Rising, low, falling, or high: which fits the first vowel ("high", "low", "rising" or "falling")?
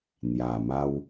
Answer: low